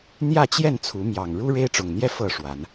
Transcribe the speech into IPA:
n̪ j ä˥˨ t͡ɕ j ɛ˥˨ n t͡sʰ u˨˦ m j ɑ˨˩ ŋ ɻ u˦ ɻ e˦ ɪ̯ ʈ͡ʂ ʊ˨˩ ŋ n̪ j ɛ˥˨ f ɤ˥˨ ʂ w a˨˦ n

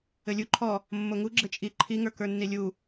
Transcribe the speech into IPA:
ɘ lʲ u ǃʰ ɔ | mː o ŋ u ɡ͡ǁ ɘ t͡ʃʼ i ǃʰ i ŋ ə˞ k ə˞ nː i lʲ u

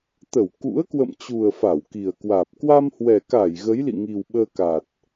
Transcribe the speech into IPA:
t̪ ə˧˩ w k ṵ˧˥ ə̯ k w ə̰˧˨ m t͡ɕ u˨˩ ə̯ f a˧˩ w k i˨˩ ə̯ k w aː˨˩ p̚ k w a˧ m h w ɛ˨˩ k a˧˩ j ɣ ə˨˦ j l ḭ˧˨ ŋ i˨˩ w ɓ əː˧ k a˨˩ t̚

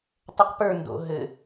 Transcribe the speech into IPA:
tˤ ə q p ə˞ n d o̰ ɦ ɘ

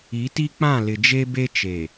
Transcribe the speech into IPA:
i˨˦ t i˦ k͡p ã˦˨ l ɪ˨ d͡ʒ e˦ b e˦ t͡ʃ e˨

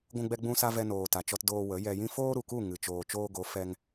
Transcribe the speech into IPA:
ɡʷ ũ˧ ɡ͡b ɛ˧ ɡ͡b ũ˧ s a˧ v ɛ˧ n oː˨ t a˨ t͡ʃ ɔ˧ t d oː˧ w ə˨˦ j ɛ˧ j ĩ˦ f oː˦ ɾ u˨ k u˦˨ ŋ ɨ˨ t͡ʃ oː˨ t͡ʃ oː˧ ɡ o˨˦ f ɛ˧ ŋ

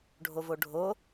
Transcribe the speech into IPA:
ɖʱ o v o ɖʱ o

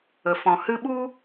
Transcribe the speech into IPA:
ə˨ f ɔ̃˨ h ɨ˧ ɓ u˦

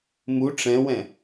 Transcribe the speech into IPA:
m u ʈ͡ʂ ɛ̃ w ɛ̃

